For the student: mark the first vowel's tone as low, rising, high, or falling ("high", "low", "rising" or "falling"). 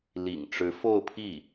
low